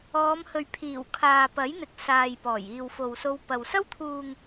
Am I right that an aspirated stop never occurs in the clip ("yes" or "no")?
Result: no